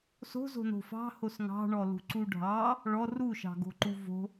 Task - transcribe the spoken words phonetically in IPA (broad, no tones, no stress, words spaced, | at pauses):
so̤zo̤no̤ fɑ̤hos ŋɑ̤ɳɔlṳǀu ɖʱɑ | ɭɔ ruʃɑ̤ɡo̤ǃu vo̤